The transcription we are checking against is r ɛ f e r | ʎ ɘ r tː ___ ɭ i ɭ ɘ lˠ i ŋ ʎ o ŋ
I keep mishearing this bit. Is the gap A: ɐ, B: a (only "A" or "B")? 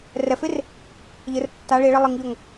B